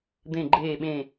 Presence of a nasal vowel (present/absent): present